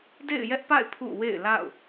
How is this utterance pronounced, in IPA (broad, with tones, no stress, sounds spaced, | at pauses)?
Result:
d ḛ˦˨ ɪ̯ j ɛ˦ ʔ p a̰˦˨ ɪ̯ pʰ ṵ˦˨ w ḛ˦˨ ɪ̯ l a̰˦˨ ʊ̯